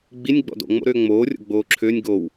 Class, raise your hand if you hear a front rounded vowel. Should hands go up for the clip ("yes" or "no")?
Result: yes